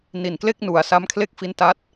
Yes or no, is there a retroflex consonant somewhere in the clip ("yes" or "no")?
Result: no